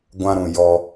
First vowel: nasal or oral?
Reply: nasal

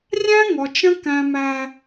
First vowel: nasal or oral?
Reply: nasal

